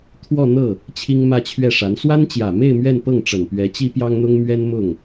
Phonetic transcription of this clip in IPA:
t̪ʰwɔ˥˧ n̪ɤ˥˩ | t͡ɕʰi˥ŋmä˥˧t͡ɕʰɥɛ˥˩ʂa˧˥n swa˥nt͡ɕjä˨˩me˥˧ɪ̯ mɥɛ˥˧n pɤ˥˩ŋʈ͡ʂə˨˩n pɥɛ˧˥t͡ɕi˥pjɑ˥ŋn̪ʊ˥ŋ mɥɛ˥nmʊ˥˩ŋ

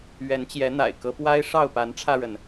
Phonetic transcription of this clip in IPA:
ɥɛ˨˦nt͡ɕjɛ˨˦n̪a̰˨˩ɪ̯ kɤ˨˦pwa˦ɪ̯ ʂɑ˥˨ʊ̯pa˨˦nʈ͡ʂʰä˧ɻə˩n

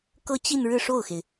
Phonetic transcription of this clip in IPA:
kɤ˥˧t͡ɕi˥˧n ɻɻ̩˥˧ʂo˥˩ʊ̯xe˩ɪ̯

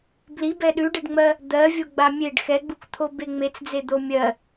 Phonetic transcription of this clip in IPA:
blibɛ ɗʉɖeɖŋ͡mɜ | d̪ɜ vʲoɡ͡bamʲeɖ xɛɡ͡bukt̪ʰo beŋ͡met͡sd͡ze d̪omʲɜ

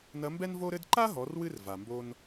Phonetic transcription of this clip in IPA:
nɐ˧˥mbɛ˥nvo˥ɾɘ˥d ǃa˥ɦɔ˩˧rwɨ˧r va˩mbo˧n

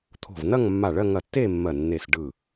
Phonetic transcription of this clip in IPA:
t̪ʰo̤˧˩vnɐ˥˧ŋmːa˧˩ɭɜ˥˧ ŋɐ˧˩tːe˥˧ mːɜ˧˩nːe˧˩s ɖɯ˧˩

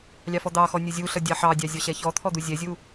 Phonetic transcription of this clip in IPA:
lʲɑfɔd̪ɑxɔ nʲəzʲuɬʌ dʲɑħɑdʲɑ zʲɔɕɛçɔt̪ʰɔ d̪uzʲɛzʲu

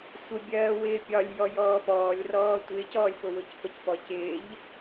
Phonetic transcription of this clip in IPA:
sʷəbʲɜː wɪːpʲɒlʲjɔ jɔːpɔːlʲrɔː tʷɪːcɔːlʲ pʊwʊcpəcpɔ cɪːʎ

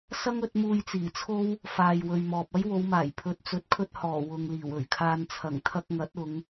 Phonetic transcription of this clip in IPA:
sɐ˥ŋɵ˨˥t̚muː˧jt͡siː˨˩ t͡sʰo˥w | faː˨jwɵ˨ɥmɔː˨p̚ ɐ˥jwo˨˧wmaː˨˩j pʰɵ˨t̚t͡sɵ˨˥t̚kʰɵ˧t̚hɔː˨˩ wʊ˨ŋ liː˨˩wɵ˨˩ɥkʰaː˧n t͡sʰɐ˨˩ŋt̪ʰɐ˧k̚ŋɐ˨˥t̚ ʊ˨˧ŋ

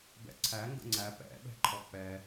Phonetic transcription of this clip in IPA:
bɛ̰ǀʰæ ŋɡə̰ŋ͡ǀæ pɛ̰ ɓɛ̤ǃʰɔk͡pɛ

